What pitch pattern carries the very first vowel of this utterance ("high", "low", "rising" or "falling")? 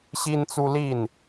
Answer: high